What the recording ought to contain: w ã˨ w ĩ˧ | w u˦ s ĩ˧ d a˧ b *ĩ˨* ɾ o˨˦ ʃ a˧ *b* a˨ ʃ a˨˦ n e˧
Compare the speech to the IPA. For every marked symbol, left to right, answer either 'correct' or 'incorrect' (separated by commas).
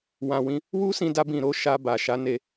correct, correct